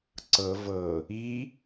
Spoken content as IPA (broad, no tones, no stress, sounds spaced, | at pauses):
ǀ ɤ v ɤ | i